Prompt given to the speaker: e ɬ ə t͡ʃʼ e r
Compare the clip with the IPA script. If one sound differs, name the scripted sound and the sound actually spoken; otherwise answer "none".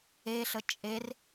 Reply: none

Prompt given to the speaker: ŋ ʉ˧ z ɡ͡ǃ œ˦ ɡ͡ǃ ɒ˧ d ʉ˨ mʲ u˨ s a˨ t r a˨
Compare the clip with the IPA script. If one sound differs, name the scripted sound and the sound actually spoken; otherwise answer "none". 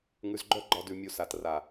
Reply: none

